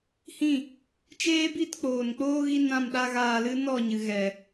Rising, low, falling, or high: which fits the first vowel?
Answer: falling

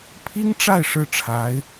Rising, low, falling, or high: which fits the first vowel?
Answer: high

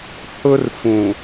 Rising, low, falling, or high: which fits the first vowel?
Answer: high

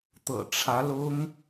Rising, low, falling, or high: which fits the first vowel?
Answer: low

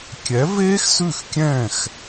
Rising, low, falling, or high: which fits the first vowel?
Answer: rising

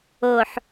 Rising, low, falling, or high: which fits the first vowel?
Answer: low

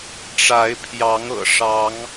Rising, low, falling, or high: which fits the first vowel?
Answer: rising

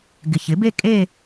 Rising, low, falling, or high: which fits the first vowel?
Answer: low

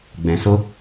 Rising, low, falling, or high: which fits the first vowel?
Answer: low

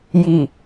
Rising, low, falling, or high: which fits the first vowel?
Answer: low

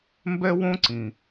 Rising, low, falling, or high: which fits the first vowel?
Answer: high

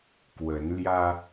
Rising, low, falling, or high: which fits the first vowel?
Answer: rising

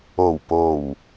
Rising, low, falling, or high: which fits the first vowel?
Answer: low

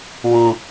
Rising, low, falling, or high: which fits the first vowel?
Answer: low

